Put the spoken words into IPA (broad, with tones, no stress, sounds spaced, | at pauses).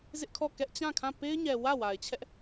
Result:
z ɪ˦ ʔ kʰ ɔ˦˨ k ɛ˦ ʔ t͡ɕ ã˦˨ kʰ ã˦˨ p e˦ ɪ̯ ɲ ɛ˨ w ä˦˨ w a˨ ɪ̯ t͡ɕʰ ɛ˦ ʔ